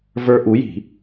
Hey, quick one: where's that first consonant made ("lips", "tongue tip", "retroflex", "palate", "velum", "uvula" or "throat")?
lips